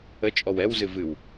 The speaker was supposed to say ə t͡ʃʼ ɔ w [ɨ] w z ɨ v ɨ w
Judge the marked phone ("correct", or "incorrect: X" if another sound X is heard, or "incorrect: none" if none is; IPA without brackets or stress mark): incorrect: ɛ